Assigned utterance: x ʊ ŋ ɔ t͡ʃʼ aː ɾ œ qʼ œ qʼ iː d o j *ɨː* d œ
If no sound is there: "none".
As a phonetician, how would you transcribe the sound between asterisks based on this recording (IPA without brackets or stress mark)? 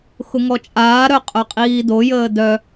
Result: əː